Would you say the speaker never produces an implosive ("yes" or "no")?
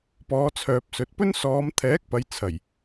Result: yes